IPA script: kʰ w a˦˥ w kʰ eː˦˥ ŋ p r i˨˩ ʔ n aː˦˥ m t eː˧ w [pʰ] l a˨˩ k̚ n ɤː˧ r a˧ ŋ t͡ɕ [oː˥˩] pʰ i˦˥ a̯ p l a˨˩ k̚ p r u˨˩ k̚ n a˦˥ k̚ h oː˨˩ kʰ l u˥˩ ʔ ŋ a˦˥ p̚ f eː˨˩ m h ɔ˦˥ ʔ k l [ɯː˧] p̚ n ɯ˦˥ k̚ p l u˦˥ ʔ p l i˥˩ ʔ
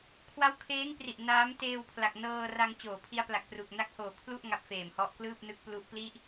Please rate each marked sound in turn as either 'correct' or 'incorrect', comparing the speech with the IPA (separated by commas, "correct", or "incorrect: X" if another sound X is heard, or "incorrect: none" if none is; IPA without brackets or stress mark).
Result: correct, incorrect: oː˨˩, incorrect: ɯː˥˩